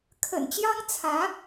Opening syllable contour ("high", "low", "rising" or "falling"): low